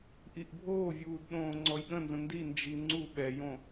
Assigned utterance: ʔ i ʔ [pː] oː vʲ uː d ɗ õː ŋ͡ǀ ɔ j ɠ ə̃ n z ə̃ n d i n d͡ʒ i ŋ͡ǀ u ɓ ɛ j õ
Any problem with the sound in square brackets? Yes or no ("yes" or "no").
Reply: yes